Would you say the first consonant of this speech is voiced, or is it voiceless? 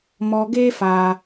voiced